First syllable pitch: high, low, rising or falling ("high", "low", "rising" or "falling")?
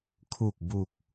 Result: low